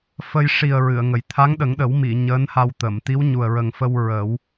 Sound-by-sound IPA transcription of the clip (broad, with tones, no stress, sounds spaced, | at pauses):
f ə˧ j ʂ i˨˩ ə̯ ɹ ɨ˨˩˨ ə̯ ŋ ə˨˩ j t̪ʰ a˧˥ ŋ ɗ ə˨˩˦ ŋ ɗ ə˨˩˦ w m i˨˩˨ ɲ əː˧˥ n h a˧ w t̪ ə˨˩˨ m t̪ i˧˥ w ɲ u˨˩ ə̯ ɹ ə˨˩ ŋ f ə˧ w ɹ ə˨˩˦ w